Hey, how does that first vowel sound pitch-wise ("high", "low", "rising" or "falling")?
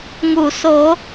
low